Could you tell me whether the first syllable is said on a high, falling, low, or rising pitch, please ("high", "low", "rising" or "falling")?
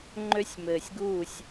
high